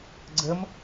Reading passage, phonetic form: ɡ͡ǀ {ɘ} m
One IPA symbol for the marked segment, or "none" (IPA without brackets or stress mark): ɘ